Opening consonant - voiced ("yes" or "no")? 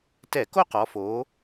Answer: no